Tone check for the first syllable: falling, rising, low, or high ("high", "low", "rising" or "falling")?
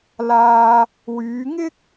low